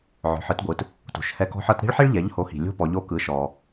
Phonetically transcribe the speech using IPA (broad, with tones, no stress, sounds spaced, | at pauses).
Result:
ʕ ɔ̤˩˧ ħ ɯ˩˧ t ɡʷ ɯ˩˧ t | t o̤˩ ʃ h ɛ˧ k ɔ̤˧ ħ ɤ˧ t ɾ i̤˥ ɭ ħ i˥ ɭ ʎ ɛ˩˧ ʎ h o˩˧ h i̤˩ lʲ o̤˥ p ɔ˩˧ ʎ o˩˧ k ɯ˩˧ ʃ ɔ˩